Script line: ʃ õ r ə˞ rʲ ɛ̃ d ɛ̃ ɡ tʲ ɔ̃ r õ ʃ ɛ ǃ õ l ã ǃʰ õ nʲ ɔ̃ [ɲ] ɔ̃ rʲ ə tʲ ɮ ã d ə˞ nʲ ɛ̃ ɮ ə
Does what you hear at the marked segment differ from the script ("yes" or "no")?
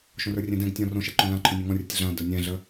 yes